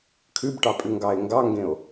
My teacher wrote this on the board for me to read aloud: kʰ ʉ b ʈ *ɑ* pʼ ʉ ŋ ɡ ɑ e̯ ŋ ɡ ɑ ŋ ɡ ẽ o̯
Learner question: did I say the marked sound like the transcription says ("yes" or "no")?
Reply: yes